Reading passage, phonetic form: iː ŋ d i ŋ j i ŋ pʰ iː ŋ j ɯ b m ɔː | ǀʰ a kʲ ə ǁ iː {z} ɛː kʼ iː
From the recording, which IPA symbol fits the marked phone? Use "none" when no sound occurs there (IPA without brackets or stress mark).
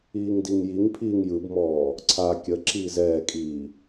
z